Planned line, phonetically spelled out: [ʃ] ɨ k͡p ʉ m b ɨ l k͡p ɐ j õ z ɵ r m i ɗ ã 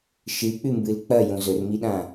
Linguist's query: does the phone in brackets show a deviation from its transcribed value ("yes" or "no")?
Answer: no